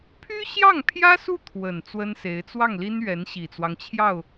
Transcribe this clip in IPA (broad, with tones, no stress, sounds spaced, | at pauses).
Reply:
pʰ y˥ ɕ j ɑ˥˩ ŋ pʰ j ä˥ s u˥˩ t̪ʰ w ə˨˩ n t͡s w ə˥ n s e˧˥ ɪ̯ t͡s w ɑ˥˩ ŋ l i˥ n ɥ ɛ˧˥ n ɕ i˨˩ t͡s w ɑ˦ ŋ t͡ɕʰ j ɑ˥˩ ʊ̯